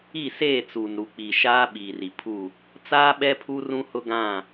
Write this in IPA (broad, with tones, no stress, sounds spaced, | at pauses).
i˦˨ s eː˦˨ t͡s uː˨ n ɾ u˨ k͡p i˨ ʃ aː˦ ɓ iː˨ r i˨ pʰ u˦˨ | t͡s aː˦ ɓ ɛ˦ pʰ u˦ r ũ˦ h ʊ˦ ɡ ã˦˨